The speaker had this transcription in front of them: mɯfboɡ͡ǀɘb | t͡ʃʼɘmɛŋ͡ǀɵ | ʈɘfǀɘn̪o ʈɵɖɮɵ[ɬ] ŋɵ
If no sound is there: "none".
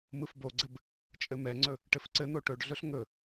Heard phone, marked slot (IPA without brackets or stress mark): ɬ